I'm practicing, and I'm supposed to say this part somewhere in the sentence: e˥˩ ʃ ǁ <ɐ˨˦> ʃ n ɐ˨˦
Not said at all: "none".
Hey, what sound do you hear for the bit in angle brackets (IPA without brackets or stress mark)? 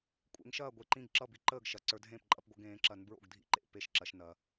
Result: ɐ˨˦